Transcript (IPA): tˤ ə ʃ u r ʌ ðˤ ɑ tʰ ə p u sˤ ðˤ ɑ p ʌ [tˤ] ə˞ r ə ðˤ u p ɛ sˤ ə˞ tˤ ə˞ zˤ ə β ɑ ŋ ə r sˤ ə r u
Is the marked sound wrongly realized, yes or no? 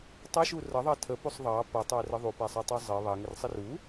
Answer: no